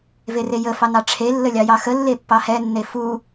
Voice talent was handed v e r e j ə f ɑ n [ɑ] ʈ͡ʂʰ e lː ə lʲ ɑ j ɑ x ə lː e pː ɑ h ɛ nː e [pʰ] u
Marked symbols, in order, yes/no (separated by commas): yes, no